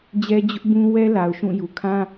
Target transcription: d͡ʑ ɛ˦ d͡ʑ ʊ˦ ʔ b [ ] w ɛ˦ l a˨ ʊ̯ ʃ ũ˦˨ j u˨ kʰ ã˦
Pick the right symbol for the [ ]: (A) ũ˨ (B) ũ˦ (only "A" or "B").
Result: B